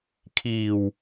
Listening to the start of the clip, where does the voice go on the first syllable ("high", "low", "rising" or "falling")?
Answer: low